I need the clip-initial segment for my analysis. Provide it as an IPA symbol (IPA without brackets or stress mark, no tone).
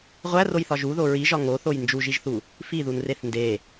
ʁʷ